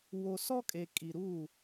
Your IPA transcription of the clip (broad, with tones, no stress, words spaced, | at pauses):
wo˨sɔ˦kʼe˨ kʼi˨ɾu˦˨